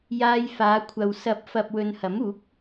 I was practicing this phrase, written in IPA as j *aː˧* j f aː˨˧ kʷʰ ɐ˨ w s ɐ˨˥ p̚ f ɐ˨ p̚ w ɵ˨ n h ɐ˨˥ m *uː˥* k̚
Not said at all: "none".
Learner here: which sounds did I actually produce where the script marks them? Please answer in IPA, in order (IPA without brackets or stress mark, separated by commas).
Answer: aː˧, uː˨˥